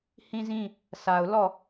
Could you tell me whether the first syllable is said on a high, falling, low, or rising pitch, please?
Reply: high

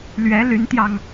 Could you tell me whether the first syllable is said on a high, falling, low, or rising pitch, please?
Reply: rising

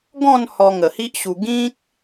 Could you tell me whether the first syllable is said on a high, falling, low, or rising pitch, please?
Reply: falling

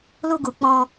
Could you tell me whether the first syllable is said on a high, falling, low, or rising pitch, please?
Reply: high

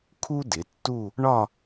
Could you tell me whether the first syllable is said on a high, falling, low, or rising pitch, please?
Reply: high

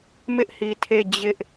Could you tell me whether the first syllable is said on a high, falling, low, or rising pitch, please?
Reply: high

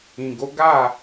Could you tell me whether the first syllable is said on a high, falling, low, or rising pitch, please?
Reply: low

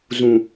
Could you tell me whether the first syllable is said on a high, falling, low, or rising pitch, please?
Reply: low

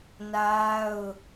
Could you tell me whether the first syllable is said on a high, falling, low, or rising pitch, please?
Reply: high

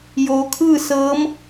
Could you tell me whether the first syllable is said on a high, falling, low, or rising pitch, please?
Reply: low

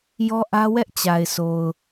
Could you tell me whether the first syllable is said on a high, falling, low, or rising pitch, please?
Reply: high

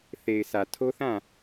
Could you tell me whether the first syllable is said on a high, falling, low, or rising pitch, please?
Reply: low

